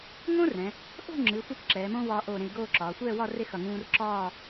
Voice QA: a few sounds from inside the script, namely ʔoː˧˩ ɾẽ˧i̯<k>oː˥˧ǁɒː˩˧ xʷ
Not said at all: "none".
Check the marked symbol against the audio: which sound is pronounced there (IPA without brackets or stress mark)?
ɡ